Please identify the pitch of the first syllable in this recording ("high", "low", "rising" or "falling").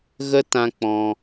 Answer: high